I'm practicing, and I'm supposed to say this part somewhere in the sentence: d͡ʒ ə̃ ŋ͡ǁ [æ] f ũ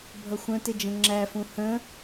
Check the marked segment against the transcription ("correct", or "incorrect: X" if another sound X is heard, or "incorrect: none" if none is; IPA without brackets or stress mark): correct